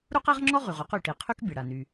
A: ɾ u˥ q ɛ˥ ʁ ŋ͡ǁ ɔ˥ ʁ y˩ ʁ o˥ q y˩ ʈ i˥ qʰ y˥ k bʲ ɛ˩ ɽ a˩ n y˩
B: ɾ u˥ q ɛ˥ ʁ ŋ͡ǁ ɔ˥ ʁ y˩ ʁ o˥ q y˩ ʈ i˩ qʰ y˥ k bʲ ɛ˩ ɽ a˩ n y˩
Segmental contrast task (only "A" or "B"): B